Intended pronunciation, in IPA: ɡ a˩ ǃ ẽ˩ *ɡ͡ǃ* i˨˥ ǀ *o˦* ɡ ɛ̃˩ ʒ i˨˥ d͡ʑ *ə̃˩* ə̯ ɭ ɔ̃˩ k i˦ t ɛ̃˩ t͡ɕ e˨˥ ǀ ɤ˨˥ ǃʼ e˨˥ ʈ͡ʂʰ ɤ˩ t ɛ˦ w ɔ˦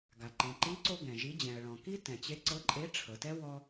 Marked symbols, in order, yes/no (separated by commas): no, yes, no